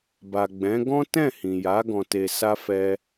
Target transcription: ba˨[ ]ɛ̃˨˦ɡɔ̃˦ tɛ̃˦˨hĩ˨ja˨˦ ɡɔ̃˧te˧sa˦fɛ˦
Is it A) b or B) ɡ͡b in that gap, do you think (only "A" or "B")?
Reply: B